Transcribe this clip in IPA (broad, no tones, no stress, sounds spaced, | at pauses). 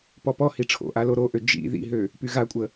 p ɔ p ɔ h i ʈ͡ʂʰ o̰ ʔ a l o ɾ o ʔ ø d͡ʒ ḭ ð ḭ ɦ ø | p y ɣ a kʷʼ ə